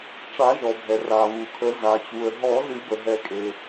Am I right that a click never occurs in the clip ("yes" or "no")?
yes